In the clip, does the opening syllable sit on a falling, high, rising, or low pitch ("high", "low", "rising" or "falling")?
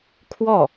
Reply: falling